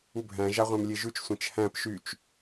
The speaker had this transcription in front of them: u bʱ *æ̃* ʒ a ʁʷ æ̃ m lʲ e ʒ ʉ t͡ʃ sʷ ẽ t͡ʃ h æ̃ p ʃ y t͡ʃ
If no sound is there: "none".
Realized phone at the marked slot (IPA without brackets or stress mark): æ̃